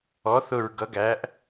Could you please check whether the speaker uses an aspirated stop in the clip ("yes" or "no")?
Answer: no